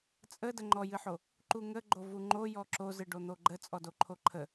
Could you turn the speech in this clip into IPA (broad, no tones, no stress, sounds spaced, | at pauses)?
t͡sʼ ə d ə ŋ͡ǃ ɔ j ɨ ħ o | ǃ u ŋ ə ɡ͡ǃ o v u ŋ͡ǃ o j ɔ ǁ o z ɨ ɖ o n̪ o ɡ͡ǃ ə t͡sʼ ɔ d o ǃʰ o ǃʰ ə